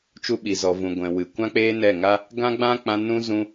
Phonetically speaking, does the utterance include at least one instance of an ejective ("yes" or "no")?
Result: no